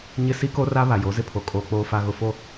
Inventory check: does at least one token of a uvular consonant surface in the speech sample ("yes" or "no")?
no